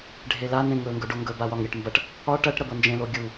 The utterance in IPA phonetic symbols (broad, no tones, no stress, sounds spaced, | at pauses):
ɖʱ e l a n ẽ ŋ ɵ ŋ ɡ ɵ ɖ o ŋ ɡ ɵ b a w ɒ ŋ ɾʲ ɐ ʈ m b ɐ ʈ | ɒ ʈ ɐ ʈ ɾ ɐ b ɤ n d͡ʒ ẽ l o ɡʲ u